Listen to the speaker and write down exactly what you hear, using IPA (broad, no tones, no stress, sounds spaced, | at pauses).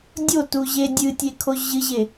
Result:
dʲ o t u ʑ e dʲ ɨ tʲ e kʰ o ʑ ɨ ʑ e